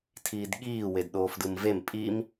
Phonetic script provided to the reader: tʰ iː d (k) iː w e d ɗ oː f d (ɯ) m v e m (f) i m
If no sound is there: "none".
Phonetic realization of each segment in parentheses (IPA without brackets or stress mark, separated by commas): ɠ, ɯ, pʼ